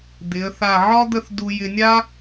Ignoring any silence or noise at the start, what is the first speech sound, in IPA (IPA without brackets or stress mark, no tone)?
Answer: d̪